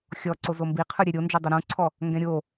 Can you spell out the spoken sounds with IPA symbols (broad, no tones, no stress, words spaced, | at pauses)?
xʲɔǀo zombiqʰɯ ɾʲeɾʲo nd͡ʒɛdˤuɾũǀʰɔ | ŋɡɛ̃ɾʲo